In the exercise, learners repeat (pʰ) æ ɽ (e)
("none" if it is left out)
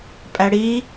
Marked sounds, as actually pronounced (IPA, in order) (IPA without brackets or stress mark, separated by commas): pʼ, i